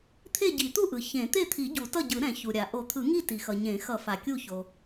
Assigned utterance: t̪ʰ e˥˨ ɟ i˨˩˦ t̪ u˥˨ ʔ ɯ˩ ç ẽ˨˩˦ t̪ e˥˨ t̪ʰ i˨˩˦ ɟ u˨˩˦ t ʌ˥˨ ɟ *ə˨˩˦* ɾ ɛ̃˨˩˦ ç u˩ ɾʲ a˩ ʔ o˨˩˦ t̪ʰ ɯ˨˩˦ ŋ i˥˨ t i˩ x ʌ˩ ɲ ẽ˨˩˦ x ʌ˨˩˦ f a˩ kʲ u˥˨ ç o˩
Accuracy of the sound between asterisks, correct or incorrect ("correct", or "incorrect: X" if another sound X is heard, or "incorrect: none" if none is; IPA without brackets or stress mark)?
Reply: incorrect: ɯ˨˩˦